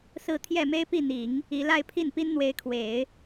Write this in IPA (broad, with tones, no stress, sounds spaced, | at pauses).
s ɹ̩˥˧ t̪ʰ j ɛ˥˩ m e˥ ɪ̯ p i˥˩ n̪ i˨˩˦ ŋ | i˧˥ l a˥˧ ɪ̯ pʰ i˥˩ n p i˥ n n̪ w e˧˥ ɪ̯ kʰ w e˨˩˦ ɪ̯